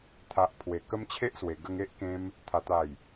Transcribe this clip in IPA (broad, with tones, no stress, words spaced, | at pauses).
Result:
t̪ʰa˨ʔpʰwe˨˩ kə˦mt͡ɕʰe˦ʔswe˨˩ ɡə˧ŋe˦ʔkẽ˧m | t̪ʰa˨˩t̪a˨˩j